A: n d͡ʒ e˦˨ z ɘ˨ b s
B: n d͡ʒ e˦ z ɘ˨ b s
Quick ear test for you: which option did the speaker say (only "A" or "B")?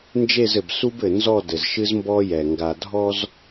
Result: A